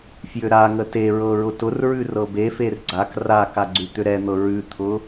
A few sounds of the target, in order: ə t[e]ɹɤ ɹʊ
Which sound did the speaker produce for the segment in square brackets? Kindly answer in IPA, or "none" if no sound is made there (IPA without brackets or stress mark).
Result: e